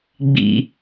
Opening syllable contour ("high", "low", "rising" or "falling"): low